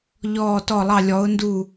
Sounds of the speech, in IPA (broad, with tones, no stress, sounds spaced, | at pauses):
ʎ ɔː˧˩ t ɔ˧˩ lˠ ɑ˧˩ lʲ ɔ˩˧ ʊ̯ n d u˧˩